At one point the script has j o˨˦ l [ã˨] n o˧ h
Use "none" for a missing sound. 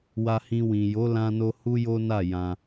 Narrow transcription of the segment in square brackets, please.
ã˧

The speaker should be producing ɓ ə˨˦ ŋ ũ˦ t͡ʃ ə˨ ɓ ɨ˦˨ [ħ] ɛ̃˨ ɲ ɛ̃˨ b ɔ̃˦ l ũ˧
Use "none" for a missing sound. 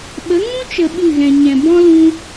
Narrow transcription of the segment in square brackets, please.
ɣ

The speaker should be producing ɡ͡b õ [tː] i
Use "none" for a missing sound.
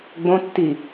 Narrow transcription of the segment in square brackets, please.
tː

